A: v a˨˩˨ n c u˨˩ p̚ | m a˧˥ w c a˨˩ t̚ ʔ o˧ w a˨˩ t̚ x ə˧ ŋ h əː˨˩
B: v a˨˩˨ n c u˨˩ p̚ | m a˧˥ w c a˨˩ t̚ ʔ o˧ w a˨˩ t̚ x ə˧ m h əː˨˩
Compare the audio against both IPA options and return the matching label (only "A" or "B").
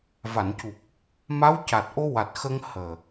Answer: A